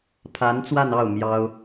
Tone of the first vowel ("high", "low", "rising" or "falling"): rising